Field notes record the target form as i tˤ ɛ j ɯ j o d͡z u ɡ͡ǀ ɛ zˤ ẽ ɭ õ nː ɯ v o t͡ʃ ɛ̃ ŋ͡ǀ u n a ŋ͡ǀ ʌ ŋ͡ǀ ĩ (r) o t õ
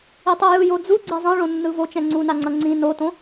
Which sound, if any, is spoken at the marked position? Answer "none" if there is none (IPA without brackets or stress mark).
n